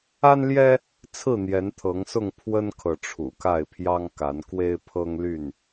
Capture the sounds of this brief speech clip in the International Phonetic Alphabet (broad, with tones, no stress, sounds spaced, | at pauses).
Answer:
a˦ n l j ɛ˦ | t͡sʰ ɹ̩˥˨ n̪ j ɛ˨˦ n t̪ʰ ɤ˨˦ ŋ s ʊ˥˨ ŋ pʰ w ə˦ n kʰ ɤ˨ ʈ͡ʂʰ ṵ˨˩ k a˥˨ ɪ̯ pʰ j ɑ˦ ŋ k a˨˦ n k w e˦ ɪ̯ pʰ ɤ˦ ŋ l y˥˨ n